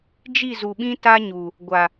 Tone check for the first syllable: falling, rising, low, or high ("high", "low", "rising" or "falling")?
falling